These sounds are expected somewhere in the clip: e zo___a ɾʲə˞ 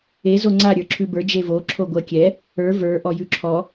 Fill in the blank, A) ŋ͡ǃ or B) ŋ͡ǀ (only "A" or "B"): B